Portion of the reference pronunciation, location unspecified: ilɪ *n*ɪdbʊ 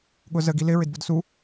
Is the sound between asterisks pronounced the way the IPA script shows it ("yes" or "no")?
no